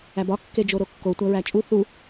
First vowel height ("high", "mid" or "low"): low